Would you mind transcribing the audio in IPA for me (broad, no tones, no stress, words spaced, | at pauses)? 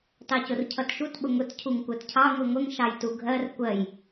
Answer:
tɑcʊrcʰʌtʃut ɓʊŋʊt cʰuŋkʷɜtcʰɑ ŋʷiŋʷəŋ ʃɑjtuɡʱɜr kʷɜj